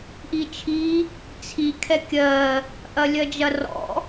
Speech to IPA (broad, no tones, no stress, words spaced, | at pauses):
ʔit͡ʃʰi | t͡sʰi kʰɛkʲɜ | ʔɐlʲɜd͡ʒɐrɔ̰